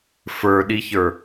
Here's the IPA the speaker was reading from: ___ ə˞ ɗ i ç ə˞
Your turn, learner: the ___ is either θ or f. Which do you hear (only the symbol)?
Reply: f